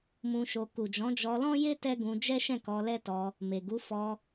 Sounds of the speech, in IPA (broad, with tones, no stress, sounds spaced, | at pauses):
m ũ˧ ʃ o˧ k u˨ d͡ʒ ɔ̃˨˦ d͡ʒ ɔ˧ l ɔ̃˦ j e˦ t ɛ˦ ɡ ũ˧ d͡ʒ ɛ˦ ʃ ɛ̃˦˨ k ɔ˧ l ɛ˦ t ɔ˧ | m e˨ ɡ u˨˦ f ɔ˧